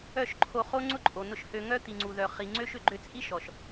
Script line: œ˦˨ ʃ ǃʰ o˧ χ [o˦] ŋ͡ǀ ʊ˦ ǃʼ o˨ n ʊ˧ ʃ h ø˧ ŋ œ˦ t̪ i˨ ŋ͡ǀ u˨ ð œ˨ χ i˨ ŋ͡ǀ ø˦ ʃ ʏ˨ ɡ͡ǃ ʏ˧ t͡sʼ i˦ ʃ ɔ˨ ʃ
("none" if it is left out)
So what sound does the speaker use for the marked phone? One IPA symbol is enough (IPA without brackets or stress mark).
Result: o˦